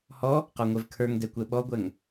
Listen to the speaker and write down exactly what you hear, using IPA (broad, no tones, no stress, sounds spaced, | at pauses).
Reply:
h ɔ | q ɔ ŋʷ ɛ v kʰ ə˞ ŋ d ɛ kʷ ɛ ɓ ɔ ɡʷ ɛ ŋ